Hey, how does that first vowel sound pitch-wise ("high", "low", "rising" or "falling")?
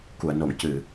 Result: low